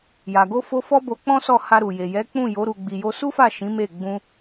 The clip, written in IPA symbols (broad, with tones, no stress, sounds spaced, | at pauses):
j a˨ ɡ o˧ f o˧ f ɔ˦ b o˧ k͡p ɔ̃˦ s ɔ˦˨ h a˧ ɾ u˨ j e˨ j ɛ˨˦ k͡p ũ˦˨ j o˨˦ ɾ u˧ ɡ͡b i˧ j o˦ s u˦ f a˦˨ ʃ ĩ˨˦ m e˦˨ ɡ͡b ũ˧